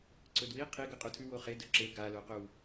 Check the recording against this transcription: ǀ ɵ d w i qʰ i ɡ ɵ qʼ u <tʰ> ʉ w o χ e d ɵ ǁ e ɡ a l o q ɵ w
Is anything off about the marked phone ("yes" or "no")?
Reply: no